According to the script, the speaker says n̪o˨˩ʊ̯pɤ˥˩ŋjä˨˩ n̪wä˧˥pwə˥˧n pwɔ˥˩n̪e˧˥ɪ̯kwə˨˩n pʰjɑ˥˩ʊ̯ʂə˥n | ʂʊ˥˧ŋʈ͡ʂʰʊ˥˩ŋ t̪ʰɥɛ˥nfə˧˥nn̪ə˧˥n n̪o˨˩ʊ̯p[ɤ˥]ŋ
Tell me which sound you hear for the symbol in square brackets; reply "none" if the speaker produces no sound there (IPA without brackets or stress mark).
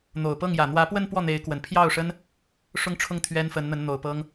ɤ˥